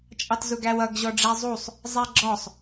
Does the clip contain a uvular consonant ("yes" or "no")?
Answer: no